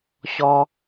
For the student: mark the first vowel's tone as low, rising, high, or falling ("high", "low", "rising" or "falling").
high